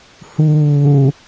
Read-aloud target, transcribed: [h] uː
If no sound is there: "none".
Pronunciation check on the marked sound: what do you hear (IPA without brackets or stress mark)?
h